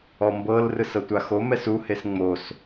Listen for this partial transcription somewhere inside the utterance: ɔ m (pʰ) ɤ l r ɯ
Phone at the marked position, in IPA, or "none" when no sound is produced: b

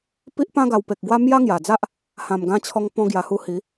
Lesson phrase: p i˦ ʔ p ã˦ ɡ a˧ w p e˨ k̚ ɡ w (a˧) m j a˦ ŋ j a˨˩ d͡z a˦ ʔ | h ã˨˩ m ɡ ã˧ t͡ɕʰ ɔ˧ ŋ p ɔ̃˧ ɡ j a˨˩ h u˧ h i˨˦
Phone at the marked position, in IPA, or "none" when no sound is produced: a˦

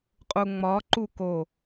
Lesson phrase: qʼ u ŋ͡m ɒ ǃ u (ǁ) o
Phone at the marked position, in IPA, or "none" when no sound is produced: k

